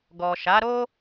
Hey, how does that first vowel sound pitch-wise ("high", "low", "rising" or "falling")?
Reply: low